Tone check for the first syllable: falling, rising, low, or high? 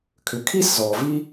low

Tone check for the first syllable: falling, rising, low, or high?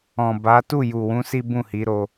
low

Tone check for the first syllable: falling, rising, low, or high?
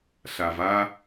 low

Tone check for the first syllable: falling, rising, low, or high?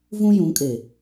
high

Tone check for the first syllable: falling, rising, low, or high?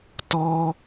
high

